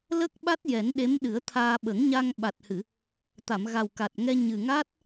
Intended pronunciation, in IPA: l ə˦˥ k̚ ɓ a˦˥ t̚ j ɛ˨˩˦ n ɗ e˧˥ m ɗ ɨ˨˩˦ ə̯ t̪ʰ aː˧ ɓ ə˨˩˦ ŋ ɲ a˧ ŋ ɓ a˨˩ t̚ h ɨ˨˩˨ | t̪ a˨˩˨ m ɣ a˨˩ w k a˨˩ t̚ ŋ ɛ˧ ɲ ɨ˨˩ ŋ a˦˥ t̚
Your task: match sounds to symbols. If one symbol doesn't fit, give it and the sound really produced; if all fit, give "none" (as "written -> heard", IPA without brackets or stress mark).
none